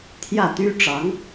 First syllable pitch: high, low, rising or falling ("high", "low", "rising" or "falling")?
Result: falling